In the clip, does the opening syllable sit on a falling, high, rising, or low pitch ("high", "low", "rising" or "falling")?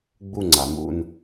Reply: falling